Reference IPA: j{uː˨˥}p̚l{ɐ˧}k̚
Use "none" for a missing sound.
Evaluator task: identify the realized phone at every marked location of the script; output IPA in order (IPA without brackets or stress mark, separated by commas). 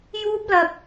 uː˥, ɐ˧